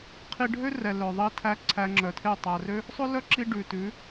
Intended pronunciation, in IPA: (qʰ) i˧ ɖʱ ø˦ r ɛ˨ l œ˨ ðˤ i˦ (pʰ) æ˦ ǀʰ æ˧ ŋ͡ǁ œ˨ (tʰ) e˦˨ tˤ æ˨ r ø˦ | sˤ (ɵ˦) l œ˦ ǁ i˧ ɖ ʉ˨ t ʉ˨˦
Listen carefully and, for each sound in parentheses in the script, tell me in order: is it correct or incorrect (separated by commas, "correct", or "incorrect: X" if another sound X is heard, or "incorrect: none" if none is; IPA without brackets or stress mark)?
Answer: correct, incorrect: tʰ, correct, correct